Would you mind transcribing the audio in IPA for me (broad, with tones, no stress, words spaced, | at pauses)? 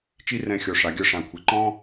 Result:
t͡ʃi˦rɛ̃˧xʲɔ˨ ʂa˨˦ɡʲɤ˦ ʂã˨ kʷʰɪ˨ǃɔ̃˦